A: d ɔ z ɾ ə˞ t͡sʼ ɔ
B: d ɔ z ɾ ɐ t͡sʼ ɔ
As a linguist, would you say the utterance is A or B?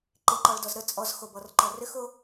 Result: A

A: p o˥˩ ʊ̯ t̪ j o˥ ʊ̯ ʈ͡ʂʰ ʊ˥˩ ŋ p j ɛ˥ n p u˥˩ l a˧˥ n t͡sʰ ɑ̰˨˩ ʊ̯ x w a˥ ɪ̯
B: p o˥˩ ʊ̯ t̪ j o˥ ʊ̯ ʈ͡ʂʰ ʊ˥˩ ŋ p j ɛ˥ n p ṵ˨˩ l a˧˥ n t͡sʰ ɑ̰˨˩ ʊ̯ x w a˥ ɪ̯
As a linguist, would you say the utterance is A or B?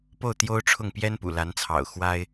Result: B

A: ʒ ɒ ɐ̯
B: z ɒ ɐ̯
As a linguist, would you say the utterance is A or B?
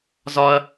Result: B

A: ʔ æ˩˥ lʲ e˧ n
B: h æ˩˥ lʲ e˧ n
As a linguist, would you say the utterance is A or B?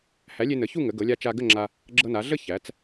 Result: B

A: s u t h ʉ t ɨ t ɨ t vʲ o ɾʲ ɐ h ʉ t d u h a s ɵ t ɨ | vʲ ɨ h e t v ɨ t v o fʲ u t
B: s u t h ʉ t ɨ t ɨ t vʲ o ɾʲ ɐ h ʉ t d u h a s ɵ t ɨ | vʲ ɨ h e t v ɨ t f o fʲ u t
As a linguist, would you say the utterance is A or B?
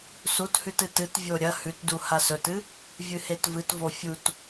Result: A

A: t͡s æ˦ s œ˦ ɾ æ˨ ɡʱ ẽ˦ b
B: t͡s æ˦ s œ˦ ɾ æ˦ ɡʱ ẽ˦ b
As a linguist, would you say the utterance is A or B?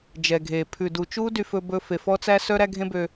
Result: B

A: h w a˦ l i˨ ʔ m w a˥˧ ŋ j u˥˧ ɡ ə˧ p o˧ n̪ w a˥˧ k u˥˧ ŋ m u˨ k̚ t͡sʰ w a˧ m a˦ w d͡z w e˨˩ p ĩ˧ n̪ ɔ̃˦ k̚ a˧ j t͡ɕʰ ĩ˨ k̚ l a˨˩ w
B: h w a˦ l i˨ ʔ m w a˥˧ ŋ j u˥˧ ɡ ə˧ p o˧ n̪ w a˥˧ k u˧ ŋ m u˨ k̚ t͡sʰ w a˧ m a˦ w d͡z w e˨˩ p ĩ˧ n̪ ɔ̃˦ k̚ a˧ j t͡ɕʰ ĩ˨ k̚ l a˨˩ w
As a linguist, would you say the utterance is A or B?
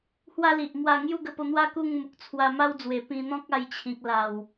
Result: A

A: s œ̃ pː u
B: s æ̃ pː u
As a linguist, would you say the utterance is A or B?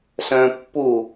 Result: A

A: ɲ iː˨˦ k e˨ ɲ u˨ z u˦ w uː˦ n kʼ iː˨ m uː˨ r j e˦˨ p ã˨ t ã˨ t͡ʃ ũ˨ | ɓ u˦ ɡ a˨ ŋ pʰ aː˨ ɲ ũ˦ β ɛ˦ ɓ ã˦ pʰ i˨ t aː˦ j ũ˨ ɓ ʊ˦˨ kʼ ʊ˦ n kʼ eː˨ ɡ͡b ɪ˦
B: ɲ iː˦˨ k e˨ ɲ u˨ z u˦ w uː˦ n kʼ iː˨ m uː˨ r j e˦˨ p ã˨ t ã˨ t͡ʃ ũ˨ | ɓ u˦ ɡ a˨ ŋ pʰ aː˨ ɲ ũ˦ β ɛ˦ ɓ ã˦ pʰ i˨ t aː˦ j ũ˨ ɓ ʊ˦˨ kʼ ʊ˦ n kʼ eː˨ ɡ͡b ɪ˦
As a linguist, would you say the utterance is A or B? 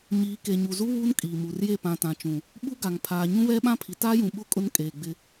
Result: A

